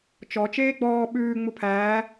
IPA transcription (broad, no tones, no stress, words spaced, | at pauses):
t͡ʃɔ t͡ʃeːɡ͡bɔː ɓʉː ŋ͡mupʰæː